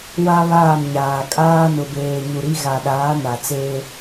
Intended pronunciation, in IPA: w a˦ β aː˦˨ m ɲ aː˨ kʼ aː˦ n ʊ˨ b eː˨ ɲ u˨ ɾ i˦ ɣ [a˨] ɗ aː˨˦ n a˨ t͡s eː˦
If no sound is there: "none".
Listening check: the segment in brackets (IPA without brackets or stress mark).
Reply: a˨